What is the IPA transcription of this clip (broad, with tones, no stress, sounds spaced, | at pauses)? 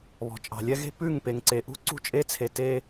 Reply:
β ɔ̤˨ t͡ʃʼ ɑ̤˨ lʲ ɛ˦ ɣ e̤˦ p ʉ˦˨ ŋ p e˨ ŋ ǀ e˨ ʔ ṳ˦ ǀ ṳ˦ t͡ʃʼ e˦ t͡sʰ e˨ t e˦